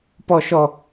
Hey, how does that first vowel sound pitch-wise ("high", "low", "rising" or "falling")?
high